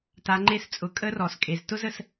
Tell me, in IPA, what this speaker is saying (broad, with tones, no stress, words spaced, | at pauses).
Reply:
ta˩˧ ŋ͡ǃe˧st͡sʼʊ˩˧ kʼə˧˥rɔ˩skʼe˩z tʊ˥zə˩s